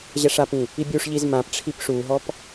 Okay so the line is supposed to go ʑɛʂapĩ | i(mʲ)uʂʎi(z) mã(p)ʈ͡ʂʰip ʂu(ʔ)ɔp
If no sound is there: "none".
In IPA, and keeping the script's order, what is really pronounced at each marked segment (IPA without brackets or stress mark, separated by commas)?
bʲ, z, p, ɦ